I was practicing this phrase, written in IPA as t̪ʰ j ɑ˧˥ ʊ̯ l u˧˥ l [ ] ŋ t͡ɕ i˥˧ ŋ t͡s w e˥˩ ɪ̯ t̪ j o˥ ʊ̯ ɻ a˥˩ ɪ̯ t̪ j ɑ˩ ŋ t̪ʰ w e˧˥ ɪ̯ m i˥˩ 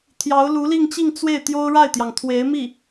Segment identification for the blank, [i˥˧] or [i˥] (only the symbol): i˥˧